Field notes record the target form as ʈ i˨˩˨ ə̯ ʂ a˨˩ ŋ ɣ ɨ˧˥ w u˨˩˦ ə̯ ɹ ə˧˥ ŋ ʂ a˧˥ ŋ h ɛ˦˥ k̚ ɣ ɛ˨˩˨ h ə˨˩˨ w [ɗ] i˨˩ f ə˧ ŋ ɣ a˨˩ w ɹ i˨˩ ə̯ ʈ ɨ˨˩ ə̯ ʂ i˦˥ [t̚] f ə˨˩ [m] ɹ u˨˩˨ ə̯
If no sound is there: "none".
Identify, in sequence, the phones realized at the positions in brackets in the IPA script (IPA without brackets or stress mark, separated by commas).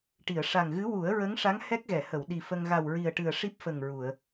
ɗ, p̚, ŋ